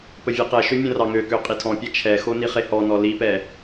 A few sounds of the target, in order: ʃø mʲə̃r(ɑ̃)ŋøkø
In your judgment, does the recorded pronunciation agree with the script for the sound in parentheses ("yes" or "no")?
no